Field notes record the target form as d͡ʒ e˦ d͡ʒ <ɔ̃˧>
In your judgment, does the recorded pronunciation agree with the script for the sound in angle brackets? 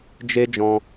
yes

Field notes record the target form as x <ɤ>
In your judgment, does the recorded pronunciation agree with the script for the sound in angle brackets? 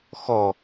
no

